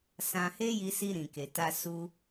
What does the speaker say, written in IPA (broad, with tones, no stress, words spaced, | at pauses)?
sã˧he˦ji˧si˧ ɾĩ˨ke˨ ta˧ su˧